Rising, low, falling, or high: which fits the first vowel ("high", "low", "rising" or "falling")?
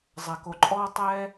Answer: low